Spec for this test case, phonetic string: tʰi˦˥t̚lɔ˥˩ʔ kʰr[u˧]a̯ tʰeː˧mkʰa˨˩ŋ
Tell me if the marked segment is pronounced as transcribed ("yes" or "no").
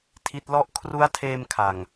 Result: no